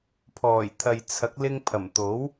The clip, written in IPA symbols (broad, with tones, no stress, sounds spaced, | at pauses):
pʰ ɔː˨˩ j t̪ʰ ɐ˨ j t͡sʰ ɐ˨˥ k̚ l ɪ˧ ŋ pʰ ɐ˨˩ m t̪ o˨˥ w